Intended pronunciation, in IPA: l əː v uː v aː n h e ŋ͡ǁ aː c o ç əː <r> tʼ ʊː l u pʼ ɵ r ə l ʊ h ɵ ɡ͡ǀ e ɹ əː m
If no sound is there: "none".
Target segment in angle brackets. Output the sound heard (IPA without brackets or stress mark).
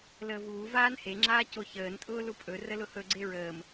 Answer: n